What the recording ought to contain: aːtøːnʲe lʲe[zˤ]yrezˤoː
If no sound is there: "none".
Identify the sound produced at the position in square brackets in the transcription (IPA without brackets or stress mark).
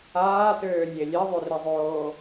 ðˤ